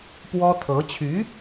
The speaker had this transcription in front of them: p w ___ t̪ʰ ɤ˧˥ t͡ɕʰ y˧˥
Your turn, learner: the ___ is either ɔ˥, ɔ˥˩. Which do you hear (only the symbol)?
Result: ɔ˥